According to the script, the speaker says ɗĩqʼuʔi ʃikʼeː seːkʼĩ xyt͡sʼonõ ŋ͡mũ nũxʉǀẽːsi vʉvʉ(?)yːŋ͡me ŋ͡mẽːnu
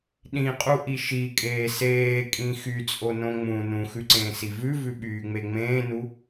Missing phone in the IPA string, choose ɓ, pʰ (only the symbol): ɓ